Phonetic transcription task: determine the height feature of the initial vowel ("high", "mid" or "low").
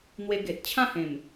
mid